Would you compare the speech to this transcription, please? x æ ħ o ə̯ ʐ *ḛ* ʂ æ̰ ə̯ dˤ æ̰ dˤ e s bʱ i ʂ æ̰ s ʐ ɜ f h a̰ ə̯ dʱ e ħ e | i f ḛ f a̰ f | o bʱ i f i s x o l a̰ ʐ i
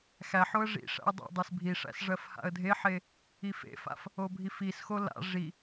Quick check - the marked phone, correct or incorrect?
incorrect